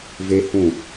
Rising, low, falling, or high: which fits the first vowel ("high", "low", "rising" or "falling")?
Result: high